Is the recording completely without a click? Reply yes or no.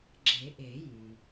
no